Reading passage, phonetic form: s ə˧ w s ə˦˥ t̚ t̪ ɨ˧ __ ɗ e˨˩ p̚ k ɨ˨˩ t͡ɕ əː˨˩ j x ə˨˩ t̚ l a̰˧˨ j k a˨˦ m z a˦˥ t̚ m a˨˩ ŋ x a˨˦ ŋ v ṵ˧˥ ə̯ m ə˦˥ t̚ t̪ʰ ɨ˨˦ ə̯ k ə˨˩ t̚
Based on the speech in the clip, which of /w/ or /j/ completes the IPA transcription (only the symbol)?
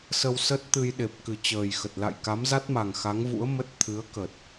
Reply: j